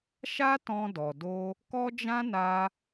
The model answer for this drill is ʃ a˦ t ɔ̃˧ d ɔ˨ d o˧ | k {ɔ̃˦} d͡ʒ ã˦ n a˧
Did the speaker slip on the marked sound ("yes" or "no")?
yes